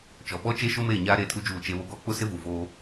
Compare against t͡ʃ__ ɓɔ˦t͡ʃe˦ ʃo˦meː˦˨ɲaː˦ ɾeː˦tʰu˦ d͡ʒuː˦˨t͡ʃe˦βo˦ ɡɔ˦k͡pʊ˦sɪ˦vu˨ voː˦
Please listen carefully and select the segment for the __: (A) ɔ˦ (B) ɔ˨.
B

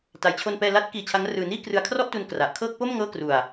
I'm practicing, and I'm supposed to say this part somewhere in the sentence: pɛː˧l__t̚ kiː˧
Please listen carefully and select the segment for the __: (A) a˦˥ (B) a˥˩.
A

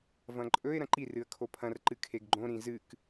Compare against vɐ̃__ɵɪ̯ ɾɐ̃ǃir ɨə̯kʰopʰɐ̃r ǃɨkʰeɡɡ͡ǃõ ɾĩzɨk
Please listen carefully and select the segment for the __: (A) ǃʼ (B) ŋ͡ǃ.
A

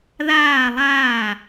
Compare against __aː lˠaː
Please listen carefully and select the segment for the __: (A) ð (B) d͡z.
A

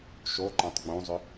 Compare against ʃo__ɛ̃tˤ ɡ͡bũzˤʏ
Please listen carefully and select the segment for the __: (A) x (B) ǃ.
B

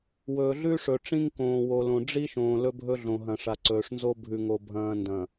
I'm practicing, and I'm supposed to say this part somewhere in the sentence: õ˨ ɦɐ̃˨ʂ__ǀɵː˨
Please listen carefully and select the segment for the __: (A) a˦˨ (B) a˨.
B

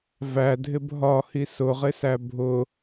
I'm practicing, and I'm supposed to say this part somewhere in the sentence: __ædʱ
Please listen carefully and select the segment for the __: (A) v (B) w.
A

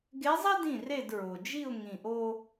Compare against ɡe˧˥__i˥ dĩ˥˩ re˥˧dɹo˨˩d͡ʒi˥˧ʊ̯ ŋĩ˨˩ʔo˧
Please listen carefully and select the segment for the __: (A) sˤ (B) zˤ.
B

